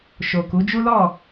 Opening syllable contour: low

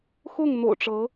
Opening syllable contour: falling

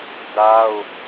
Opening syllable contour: high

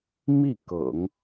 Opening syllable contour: falling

